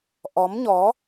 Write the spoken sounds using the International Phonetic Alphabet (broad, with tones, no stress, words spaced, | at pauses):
ʔɔ˨˦mɲɔ˨˦